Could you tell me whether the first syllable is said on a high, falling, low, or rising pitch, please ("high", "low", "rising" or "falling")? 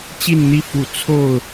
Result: falling